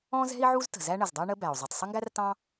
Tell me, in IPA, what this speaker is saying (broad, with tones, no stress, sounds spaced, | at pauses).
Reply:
ɔ̃˥ z ɛ̤˥ i̯ ʕ u˥ z t ə̤˩ z æ˥ ɳ ə˩ z dˤ ɛ˥ ɳ ə˥ b æ˩ u̯ zˤ u˩ tˤ sˤ ə˥ ŋ ɡ æ˥ r t ɑ̃˥